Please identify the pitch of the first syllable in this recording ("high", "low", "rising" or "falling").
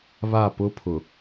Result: falling